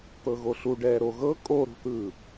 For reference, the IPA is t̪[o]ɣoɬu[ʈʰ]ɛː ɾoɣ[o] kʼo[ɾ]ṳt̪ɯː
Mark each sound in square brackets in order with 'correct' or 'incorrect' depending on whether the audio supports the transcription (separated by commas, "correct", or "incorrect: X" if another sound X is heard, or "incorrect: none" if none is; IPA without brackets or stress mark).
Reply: incorrect: ɤ, incorrect: ɖ, incorrect: ɤ, correct